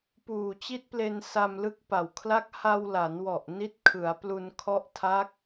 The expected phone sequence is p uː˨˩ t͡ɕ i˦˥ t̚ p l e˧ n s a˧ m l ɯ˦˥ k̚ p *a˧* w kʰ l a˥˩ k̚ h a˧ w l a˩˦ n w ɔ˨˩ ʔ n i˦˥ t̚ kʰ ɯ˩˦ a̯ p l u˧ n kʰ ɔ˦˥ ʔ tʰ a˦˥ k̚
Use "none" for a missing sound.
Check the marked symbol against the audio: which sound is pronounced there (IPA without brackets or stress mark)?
a˨˩